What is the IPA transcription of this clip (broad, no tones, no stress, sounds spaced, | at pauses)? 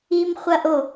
i m χʷ ɐ ʔ o